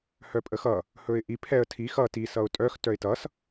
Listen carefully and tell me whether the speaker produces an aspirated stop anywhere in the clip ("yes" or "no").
yes